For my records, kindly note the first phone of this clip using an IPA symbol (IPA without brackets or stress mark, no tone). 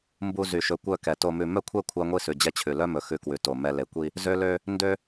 m